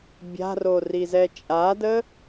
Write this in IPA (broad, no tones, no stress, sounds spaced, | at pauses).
bʲ a̤ r o r i z ɛ t͡ʃʼ a d ə